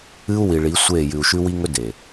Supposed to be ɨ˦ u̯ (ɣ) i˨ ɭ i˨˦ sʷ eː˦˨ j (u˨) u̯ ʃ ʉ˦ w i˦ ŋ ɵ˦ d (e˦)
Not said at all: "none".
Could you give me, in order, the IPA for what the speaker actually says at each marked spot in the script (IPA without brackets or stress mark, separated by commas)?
w, ʉ˨, e˨